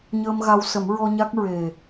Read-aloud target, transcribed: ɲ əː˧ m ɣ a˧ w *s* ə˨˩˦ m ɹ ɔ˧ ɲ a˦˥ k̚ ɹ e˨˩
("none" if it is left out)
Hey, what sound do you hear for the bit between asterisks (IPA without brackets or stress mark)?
s